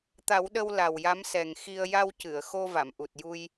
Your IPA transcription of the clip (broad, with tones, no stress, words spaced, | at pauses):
t̪a˨˩˦wɗə˧w la˨˩wja˧˥msɛ˨˩ŋ xi˧ə̯ ja˧w cɨ˨˩˨ə̯ xo˧va˨˩˨mʔu˨˩t̚ ju˧j